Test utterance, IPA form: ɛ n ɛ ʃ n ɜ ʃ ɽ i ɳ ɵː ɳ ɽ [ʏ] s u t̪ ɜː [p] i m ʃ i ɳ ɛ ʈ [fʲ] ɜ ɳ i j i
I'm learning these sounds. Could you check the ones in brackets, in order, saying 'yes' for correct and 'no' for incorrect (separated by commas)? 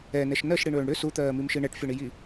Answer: yes, no, yes